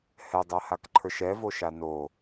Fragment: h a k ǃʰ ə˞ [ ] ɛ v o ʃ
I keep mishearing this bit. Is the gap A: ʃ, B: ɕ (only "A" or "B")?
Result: A